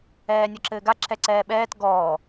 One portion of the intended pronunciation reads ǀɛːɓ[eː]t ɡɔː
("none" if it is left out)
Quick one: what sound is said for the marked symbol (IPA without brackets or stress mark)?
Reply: ɛː